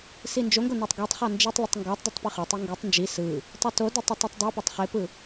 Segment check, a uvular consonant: present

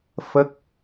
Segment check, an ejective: absent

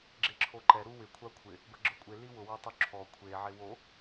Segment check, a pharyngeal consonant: present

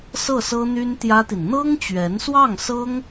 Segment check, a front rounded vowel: present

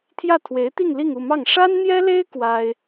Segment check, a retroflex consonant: present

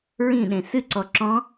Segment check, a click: present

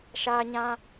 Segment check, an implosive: absent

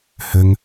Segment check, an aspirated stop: absent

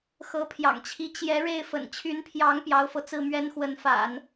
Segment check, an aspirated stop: present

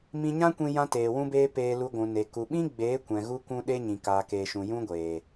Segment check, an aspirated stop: absent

